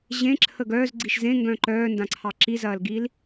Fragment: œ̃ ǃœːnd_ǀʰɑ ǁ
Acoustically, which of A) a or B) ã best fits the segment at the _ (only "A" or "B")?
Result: B